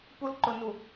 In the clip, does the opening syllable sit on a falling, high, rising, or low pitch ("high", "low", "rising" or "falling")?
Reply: high